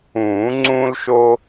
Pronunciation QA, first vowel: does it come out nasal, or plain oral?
nasal